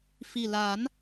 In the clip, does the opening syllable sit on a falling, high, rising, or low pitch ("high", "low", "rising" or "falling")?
low